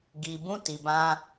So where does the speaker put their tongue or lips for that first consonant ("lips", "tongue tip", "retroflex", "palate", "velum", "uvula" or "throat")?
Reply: velum